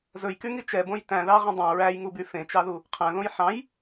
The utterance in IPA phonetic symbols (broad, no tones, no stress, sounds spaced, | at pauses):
z ɵ j k y ŋ i t͡ʃ ɛ b õ j t æ̃ ð ɑ ʁ ẽ dˤ õ ɹ æ j ŋ u b y f ẽ t͡ʃ ɑ ð u | qʰ æ̃ ð õ j ħ ɑ̃ j